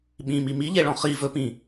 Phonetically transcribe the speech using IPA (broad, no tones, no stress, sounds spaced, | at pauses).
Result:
ɓ ĩ m i m i ʎ e ɭ ɔ̃ χ i v ɵ p ĩ